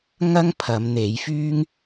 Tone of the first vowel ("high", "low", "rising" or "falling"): high